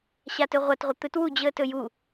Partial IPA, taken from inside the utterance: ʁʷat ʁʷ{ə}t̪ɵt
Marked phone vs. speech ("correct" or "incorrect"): correct